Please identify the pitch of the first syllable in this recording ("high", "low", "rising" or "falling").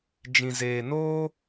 low